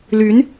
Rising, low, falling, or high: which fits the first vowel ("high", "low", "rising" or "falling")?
rising